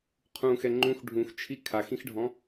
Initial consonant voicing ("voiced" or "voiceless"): voiceless